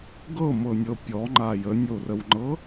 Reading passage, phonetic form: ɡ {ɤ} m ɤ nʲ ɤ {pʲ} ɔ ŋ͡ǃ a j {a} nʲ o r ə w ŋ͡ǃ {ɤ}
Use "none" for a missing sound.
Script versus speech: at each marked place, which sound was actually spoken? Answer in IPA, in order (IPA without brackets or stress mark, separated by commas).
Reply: ɤ, pʲ, ə, ɤ